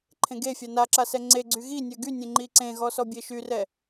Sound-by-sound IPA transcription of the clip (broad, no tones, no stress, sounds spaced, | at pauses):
ǃʰ ẽ ɡ e fʲ a n a ǁ a s ɛ ŋ͡ǀ e ɡ͡ǀ y ɣ i nʲ œ ɡ y nʲ ẽ ŋ͡ǃ i ǀ ẽ ɣ ɔ s ɔ bʲ e ʃ y r ɛ